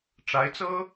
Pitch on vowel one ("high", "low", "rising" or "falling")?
rising